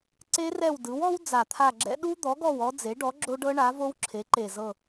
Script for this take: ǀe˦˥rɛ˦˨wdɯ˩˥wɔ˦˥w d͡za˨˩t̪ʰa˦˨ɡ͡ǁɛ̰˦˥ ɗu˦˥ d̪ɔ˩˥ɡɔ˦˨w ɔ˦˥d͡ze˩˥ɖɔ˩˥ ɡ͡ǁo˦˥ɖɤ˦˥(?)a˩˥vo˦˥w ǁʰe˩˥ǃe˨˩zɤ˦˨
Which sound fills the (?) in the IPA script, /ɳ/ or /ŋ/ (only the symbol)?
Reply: ɳ